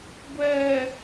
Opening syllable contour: low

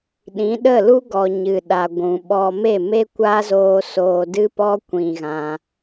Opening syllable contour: rising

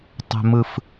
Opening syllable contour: low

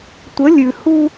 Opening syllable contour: rising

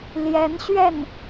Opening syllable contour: rising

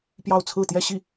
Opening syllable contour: falling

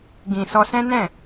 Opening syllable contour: low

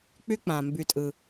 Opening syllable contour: high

